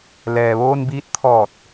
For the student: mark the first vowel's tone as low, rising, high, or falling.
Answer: low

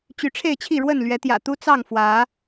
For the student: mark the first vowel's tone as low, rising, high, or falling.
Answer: rising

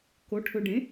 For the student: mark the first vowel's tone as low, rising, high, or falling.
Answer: rising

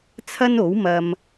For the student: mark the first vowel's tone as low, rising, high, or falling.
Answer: high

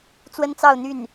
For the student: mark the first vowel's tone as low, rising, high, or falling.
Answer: high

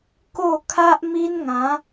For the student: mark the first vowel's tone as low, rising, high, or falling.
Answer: falling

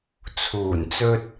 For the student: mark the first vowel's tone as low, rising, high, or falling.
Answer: low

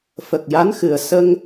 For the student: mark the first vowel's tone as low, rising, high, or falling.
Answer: low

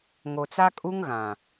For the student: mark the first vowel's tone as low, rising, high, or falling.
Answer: low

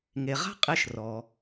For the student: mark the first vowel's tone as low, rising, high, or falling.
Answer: low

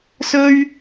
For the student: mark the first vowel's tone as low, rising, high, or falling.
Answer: high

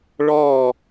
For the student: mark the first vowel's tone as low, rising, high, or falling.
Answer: falling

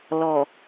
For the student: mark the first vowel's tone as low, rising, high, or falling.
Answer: low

